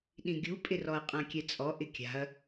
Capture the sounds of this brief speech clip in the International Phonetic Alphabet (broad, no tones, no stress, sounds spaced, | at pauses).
ɗ ĩ ɡʲ u pʼ ɪ r ɔ ɐ̯ qʼ ã kʲ ɛ t͡sʼ ɔ ʔ ɪ kʲ a̤ ɐ̯